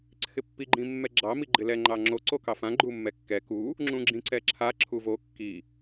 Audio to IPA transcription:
ǀʰ ɪ pː i ɡ͡ǃ ĩ mː ɛ ɡ͡ǁ ɑ m i ɡ͡ǃ ɪ l ɛ ŋ͡ǃ ɑ ŋ͡ǁ o ǀ o k ɑ f ã ɡ͡ǃ u mː ɛ kː ɛ k u | ŋ͡ǁ ũ ɡ͡ǁ ĩ ǀ ɛ ǁʰ a ǁʰ u v o kː i

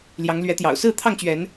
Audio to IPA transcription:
l j ɑ˨˦ ŋ l ɥ ɛ˨˦ t̪ j ɑ̰˨˩ ʊ̯ s ɹ̩˥˨ t̪ʰ ɑ˥˨ ŋ t͡ɕ ɥ ɛ˨˦ n

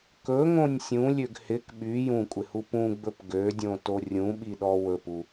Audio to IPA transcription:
k ɵ ŋ õ nʲ sʲ ũ lʲ ø ɡ h ɪ k ɓ y j ũ kʷʼ ɪ h u p ũ ɡ͡b ɵ p ɡ ø dʲ õ t o rʲ ũ ɓ i ɗ ɔ w ɵ p u

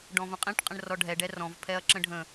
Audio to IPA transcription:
ɖ ɔ̃ v ə̃ qʼ ĩ ʈ qʼ ə̃ ɳ r ɔ ɖʱ ɛ ɖ ɛ r ɔ̃ v pʰ ɛ ɐ̯ ǁ ə̃ ɖʱ ə̃

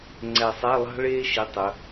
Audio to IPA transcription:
ŋ͡ǀ ɛ˨˩ sˤ æ˧˥˧ lˠ ɑ̤˥ ɭ eː˥ ʃ i˩˥ tˤ ɵ˩˧

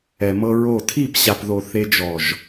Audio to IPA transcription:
ɛ˨ m ɤ˧ ɹ o˦˨ tʰ iː˦˨ p ɕ a˨ p ð o˨ θ e˧ d͡ʒ ɔ˨ ʒ

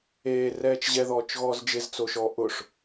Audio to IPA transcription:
eː r ɛː t͡ʃ ʑ ɛ ð ɔː t͡ʃ ɣ ɔː z d͡ʒ ɪ z t͡s o ʃ ɔː ʔ ʊ ʂ

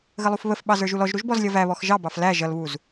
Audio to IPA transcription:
ɣ ə lˠ u f β ə f ɓ ɑ z ə˞ ʒ u l ɔ ʒ ɾ u ʒ b ɔ z lʲ ʌ v æ β ɔ x ʒ ɑ b ɑ f l æ ʒ ʌ l β u z

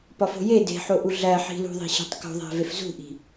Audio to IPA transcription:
p ɒ f o̤ j e d e̤ ħ o ʔ u ɮ æ ħ i̤ l ṳ ðˤ i̤ ɕ i̤ tˤ k o̤ ðˤ æ̤ v e f z ṳ ʔ i̤

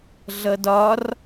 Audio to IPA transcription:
ɮ ʌ d ɒ r

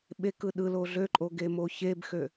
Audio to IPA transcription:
ɓ e k ɯ ɗ ɯ l o ɮ ø ǃʼ o ɡ e m o ç e b x ø

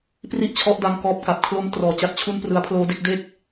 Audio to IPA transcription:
p r i˥˩ ʔ t͡ɕʰ ɔ˦˥ ʔ d a˧ ŋ k ɔː˦˥ p̚ k a˨˩ p̚ kʰ l o˧ m t r ɔː˩˦ t͡ɕ a˨˩ t̚ t͡ɕʰ u˦˥ n p r ɯ˧ a̯ pʰ l oː˦˥ d e˥˩ k̚ d e˥˩ k̚

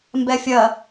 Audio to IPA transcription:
m b ɛ fʲ ɐ

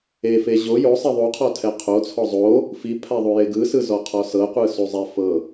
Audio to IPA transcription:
e f e ʑ o j o sˤ i ðˤ u qʰ ɔ tʰ ɛ qʰ o t͡sʰ ɔ zˤ o | f i pʰ a ðˤ u j e ɡ ɯ s ɯ z ɔ qʰ ɔ s ɤ qʷ ɯ s u zˤ ɛ f ɤ

